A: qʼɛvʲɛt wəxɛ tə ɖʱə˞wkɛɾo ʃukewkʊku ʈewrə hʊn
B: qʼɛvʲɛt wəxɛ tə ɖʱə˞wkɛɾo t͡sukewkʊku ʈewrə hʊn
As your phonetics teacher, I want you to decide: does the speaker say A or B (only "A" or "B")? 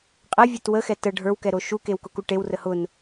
A